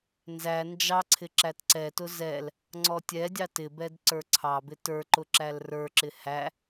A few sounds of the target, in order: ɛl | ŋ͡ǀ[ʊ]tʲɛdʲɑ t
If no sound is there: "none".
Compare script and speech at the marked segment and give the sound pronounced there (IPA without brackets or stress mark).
ɔ